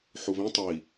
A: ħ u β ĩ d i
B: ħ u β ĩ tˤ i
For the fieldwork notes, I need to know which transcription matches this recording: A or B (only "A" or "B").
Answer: B